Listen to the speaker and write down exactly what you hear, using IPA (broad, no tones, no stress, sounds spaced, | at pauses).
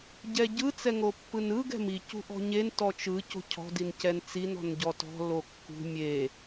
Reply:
ɟ ɛ ɟ ɯ t͡s ɛ ŋ o pː ɯ n ɯ ɡ ɛ̤ m i c ṳ ʔ ɔ̤ ɲ e n t ɔ t͡ʃ ɯ c o̤ cʰ ɔ̤ d i n c ɛ n t͡s i n ɔ̤ n ɟ ɔ t ɔ̤ l o kː ṳ mʲ e